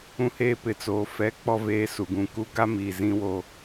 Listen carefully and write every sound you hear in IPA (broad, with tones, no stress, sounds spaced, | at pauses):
ũ˨ h eː˨ p ɪ˨ t͡s oː˨ f ɛ˨˦ k͡p ɔ˨ v eː˨ s u˨ ɡ ũ˨ k u˦ ɡ a˦ m iː˨ z ĩ˦ w o˦